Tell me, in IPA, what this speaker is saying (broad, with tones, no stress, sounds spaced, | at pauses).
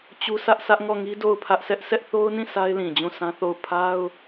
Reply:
t͡ɕ u˦ sʰ ä˦ ʔ sʰ ä˦ ʔ ŋ ɔ˦˨ ŋ i˦ d o˦˨ ʊ̯ pʰ ä˦ ʔ s ɛ˦ ʔ s ɛ˦ ʔ θ o˦ ʊ̯ n ĩ˦˨ sʰ a˦ ɪ̯ l ĩ˨ d͡ʑ ũ˦˨ s ã˦ θ o˦˨ ʊ̯ pʰ a˦ ʊ̯